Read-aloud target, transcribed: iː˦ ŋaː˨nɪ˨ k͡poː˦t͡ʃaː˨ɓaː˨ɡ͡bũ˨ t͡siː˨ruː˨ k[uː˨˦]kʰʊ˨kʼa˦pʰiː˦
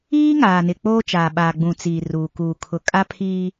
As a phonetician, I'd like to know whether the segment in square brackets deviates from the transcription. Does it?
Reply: yes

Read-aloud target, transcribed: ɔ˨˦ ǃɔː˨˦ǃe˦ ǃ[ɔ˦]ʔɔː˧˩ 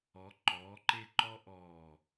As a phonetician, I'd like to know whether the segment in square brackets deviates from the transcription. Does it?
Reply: no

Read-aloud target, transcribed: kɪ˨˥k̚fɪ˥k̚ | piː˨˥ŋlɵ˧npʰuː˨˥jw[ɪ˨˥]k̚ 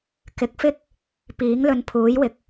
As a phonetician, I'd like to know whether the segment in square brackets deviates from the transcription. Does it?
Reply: yes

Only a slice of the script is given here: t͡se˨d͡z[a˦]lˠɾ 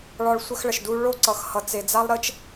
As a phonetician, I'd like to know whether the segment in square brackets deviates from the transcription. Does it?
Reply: no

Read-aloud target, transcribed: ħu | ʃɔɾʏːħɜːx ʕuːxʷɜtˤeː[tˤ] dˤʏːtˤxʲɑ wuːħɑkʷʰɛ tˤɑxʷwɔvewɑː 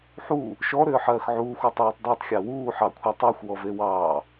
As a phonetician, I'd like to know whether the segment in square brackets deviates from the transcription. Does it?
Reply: no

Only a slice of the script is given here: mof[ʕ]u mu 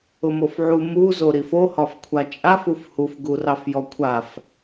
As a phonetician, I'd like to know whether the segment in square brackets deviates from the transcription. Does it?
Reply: no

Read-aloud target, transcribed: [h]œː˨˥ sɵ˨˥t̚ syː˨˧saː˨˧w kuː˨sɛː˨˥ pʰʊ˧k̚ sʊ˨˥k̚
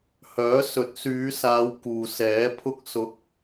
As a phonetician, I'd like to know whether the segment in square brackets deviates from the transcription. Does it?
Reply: no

